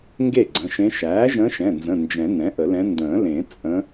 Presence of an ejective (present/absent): present